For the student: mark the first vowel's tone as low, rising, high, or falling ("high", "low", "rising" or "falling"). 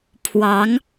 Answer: rising